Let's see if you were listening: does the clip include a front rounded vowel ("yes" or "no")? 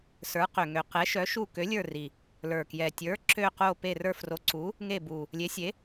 yes